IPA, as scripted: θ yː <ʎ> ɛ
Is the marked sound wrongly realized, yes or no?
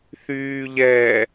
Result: no